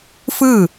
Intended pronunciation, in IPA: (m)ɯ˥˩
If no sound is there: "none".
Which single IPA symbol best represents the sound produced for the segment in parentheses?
f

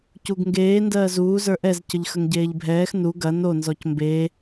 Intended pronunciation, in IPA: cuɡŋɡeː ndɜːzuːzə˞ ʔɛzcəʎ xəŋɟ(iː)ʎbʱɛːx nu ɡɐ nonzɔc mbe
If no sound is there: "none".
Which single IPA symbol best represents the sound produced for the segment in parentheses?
eː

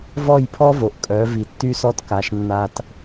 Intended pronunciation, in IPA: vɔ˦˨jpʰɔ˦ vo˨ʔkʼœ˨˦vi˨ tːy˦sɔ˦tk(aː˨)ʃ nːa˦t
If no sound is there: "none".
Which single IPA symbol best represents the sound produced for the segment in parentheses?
a˨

